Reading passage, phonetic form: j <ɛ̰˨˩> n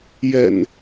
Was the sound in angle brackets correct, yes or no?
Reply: yes